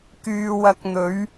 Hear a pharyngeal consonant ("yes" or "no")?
no